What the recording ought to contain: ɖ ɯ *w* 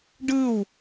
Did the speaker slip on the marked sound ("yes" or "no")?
no